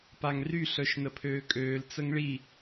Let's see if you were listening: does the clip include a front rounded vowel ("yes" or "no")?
yes